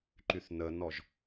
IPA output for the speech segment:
ǃ y θ n ə n ɔ ʒ

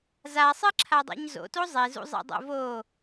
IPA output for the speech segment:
z a sˤ ɨ ǁʰ a dˤ ḛ ɲ z o̰ t o zˤ e z ṵ zˤ ḛ dˤ o̰ v o

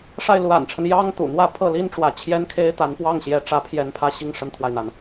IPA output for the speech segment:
ʂ a˥˩ ɪ̯ l u˧˥ a̰˨˩ n ʈ͡ʂʰ ə˦ n j ɑ˥ ŋ t̪ ṵ˨˩ n̪ w ä˥˧ pʰ ɤ˥˩ l i˥ n ʈ͡ʂ w ä˧˥ t͡ɕʰ j ɛ˥ n kʰ e˥ ɪ̯ t̪ a˧˥ n p w ɑ˥˩ ŋ ɕ j ɛ˧˥ ʈ͡ʂ ä˧˥ pʰ j ɛ˧˥ n pʰ ä˧˥ ɕ i˥˩ ŋ ʂ ə˥ n t̪ʰ w a˨ ɪ̯ n̪ a˩ n

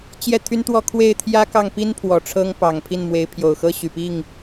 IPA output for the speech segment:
t͡ɕ j ɛ˥˩ t̪ʰ y˥ n t̪ w ɔ˥˧ kʰ w e˥˩ ɪ̯ t̪ʰ j ä˥ k ɑ˥˩ ŋ p i˥ n pʰ w ɔ˨˩ ʈ͡ʂʰ ɤ˥ ŋ p ɑ˨˩ ŋ pʰ i˥˩ n m w e˧˥ ɪ̯ pʰ j o˨˩ ʊ̯ x ɤ˥ ɕ y˨˩ p i˥˩ ŋ

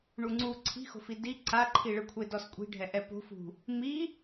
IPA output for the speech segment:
ɳ u ŋ͡ǀ u ǀʰ i̤ x o̤ f i d i ǀ a ǃʰ i ɭ ɯ kʷʰ e d ɔ s kʷʼ i̤ ɖʱ ɛ ʔ ɛ p o̤ f ṳ | m i

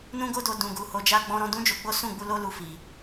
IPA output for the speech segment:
n ũ˦ ɡ o˦ d o˧ d ũ˧ ɡ u˧ h o˧ d͡ʒ a˦ ɡ͡b ɔ̃˦ ɾ ɔ̃˦ d ũ˦ d͡ʒ o˧ ɡ͡b o˦ s ũ˦˨ ɡ͡b u˧ l o˦ l u˦ f i˧

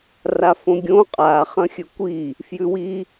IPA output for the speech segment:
r a f õ ɡʲ õ qʼ a χ ɐ̃ xʲ ɵ kʷ i | f j ʉ w i

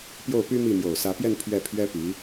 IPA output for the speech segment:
p j o˥˩ ʊ̯ p y˥ m i˥˩ m j o˨˩ ʊ̯ s ä˧˥ p j ɛ˥˧ n pʰ ɥ ɛ˥˩ pʰ ɥ ɛ˥ p i˧˥

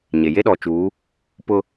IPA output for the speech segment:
ɲ e˨ j e˦ ɗ ɔ˨ t͡ʃ uː˨˦ | p ʊ˦

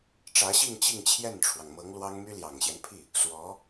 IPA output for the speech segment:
ʈ͡ʂ ä˧˥ ɕ i˥˧ ŋ t͡ɕ i˥˧ ŋ t͡ɕʰ j ɛ˥˩ n ʈ͡ʂʰ w ɑ˩ ŋ m ɤ˧˥ ŋ l w ɑ˥ ŋ m y˥ l j ɑ˨˩ ŋ ɕ j ɛ˦ n pʰ i˥˩ | s w ɔ˧˥

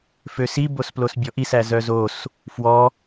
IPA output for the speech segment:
f ø s i b o s p l o s bʲ ɔ ʔ i s æ z œ z o s | f w ɔ

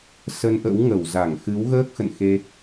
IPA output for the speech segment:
s ə˧ n ʔ ə̰˧˥ w ŋ ə˧˩ w z a˧˩ ŋ x ɨ˨˦ w ɣ əː˦˥ k̚ x ə̰˧˨ n x e˧

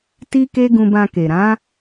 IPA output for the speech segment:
t i˦ k e˦ ɡ ũ˧ b ã˧ k e˨ ɾ ã˨˦

